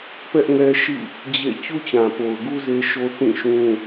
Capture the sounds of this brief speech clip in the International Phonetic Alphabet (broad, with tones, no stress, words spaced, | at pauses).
pɛ˦ʔŋɛ˦ʃḭ˦˨ | d͡ʑḛ˦˨ t͡ɕu˦t͡ɕã˨po˨ʊ̯ɡu˦ ze˦ʃo˦ θĩ˦˨ʃũ˦